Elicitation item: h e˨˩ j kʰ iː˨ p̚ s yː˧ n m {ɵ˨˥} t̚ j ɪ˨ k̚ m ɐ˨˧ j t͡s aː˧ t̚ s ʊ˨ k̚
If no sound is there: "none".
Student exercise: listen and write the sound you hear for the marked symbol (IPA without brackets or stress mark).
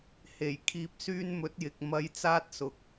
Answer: ɵ˨˥